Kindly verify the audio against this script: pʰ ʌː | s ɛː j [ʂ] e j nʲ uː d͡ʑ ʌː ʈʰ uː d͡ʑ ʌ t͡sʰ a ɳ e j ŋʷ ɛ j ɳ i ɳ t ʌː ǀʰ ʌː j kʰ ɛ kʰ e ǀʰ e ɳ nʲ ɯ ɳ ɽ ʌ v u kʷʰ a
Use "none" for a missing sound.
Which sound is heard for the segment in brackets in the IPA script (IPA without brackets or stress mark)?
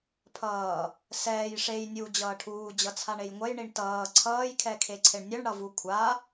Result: ʂ